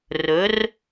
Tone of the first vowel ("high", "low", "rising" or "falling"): rising